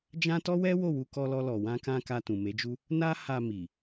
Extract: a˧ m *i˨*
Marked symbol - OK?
yes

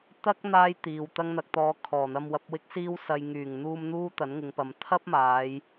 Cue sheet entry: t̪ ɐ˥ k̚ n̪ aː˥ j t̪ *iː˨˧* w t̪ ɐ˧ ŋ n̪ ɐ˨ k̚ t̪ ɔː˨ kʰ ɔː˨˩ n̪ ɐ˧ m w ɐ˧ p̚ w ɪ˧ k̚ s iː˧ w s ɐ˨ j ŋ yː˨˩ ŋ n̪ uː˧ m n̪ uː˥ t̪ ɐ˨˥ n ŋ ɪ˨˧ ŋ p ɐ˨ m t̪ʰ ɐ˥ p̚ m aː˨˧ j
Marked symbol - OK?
no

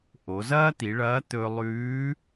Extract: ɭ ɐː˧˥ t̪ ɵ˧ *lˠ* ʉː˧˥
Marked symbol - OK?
yes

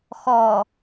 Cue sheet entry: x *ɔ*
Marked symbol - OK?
yes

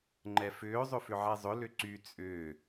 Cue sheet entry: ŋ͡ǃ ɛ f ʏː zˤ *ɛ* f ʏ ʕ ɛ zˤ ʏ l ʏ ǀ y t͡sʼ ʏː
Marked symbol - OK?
no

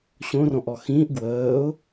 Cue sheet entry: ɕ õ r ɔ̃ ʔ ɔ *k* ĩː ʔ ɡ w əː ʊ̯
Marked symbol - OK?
no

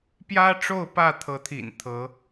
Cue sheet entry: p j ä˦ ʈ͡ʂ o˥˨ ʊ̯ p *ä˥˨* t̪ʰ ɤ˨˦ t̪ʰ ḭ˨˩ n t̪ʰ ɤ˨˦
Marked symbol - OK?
yes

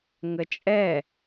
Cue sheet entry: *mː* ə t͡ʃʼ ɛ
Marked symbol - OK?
no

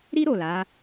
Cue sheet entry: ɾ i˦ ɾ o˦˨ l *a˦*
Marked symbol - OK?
no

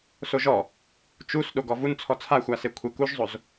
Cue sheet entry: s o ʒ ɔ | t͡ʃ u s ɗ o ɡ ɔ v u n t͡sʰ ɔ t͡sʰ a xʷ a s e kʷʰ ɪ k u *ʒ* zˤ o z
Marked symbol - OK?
yes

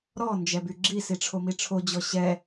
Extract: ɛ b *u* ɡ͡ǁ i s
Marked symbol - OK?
no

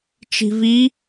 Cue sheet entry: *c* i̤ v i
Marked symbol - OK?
no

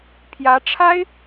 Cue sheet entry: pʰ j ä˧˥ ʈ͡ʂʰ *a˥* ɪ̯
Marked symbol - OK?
yes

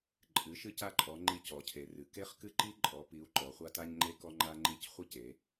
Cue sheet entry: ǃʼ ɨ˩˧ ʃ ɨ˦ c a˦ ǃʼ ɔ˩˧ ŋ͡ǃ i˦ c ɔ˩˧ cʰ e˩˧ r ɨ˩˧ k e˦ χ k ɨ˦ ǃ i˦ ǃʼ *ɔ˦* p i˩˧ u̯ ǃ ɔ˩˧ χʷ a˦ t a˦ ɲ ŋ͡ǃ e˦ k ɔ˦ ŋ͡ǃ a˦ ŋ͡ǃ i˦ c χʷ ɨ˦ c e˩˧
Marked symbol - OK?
no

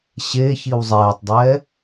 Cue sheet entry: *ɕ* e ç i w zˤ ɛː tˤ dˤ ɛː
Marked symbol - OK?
yes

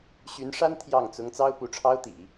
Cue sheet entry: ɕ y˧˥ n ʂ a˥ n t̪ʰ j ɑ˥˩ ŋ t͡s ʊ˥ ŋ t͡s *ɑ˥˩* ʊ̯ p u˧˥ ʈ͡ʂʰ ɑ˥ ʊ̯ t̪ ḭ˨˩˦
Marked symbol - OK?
no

